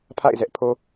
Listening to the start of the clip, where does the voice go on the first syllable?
falling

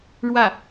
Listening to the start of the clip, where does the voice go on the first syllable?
falling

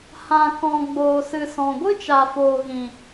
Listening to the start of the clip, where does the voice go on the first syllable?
low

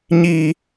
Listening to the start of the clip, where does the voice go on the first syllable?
high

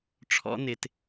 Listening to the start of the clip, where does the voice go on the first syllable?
high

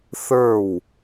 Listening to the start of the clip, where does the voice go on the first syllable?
falling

